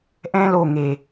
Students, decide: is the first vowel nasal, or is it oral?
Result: nasal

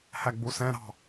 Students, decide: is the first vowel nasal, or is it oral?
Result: oral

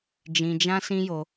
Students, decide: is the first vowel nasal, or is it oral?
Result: nasal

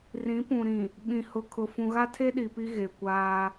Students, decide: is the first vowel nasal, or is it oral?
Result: nasal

